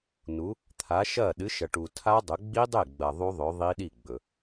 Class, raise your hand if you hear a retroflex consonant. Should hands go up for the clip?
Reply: yes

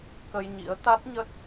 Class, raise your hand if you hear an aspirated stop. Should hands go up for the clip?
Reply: no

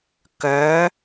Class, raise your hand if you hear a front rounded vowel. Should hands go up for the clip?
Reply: yes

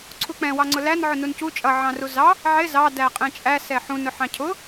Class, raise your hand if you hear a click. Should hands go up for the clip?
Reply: yes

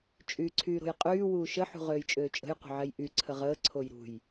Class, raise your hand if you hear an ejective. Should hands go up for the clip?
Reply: yes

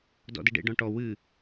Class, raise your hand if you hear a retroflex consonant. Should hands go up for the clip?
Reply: yes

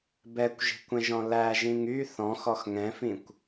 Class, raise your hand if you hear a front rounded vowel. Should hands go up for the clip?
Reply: yes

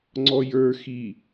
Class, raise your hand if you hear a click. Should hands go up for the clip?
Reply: yes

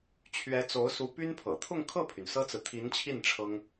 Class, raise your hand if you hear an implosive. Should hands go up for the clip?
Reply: no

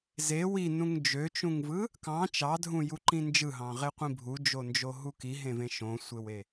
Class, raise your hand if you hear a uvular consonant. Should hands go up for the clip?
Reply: yes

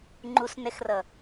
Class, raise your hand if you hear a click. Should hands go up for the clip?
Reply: yes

